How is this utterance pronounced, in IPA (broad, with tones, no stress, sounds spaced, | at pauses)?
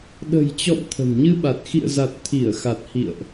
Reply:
ɗ ə̤˨˩ j t͡ɕ ɔ̰˧˨ m t̪ʰ ə̤˨˩ n ɲ ɨ˧ ɓ a˨˩ t̚ x ḭ˧˨ ə̯ z a˨˩ t̚ t̪ʰ i˧˩ ə̯ x a˨˩ t̚ h ḭ˧˨ ə̯ ʔ